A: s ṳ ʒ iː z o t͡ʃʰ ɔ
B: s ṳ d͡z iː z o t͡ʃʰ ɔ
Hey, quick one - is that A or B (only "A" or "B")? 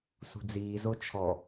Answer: B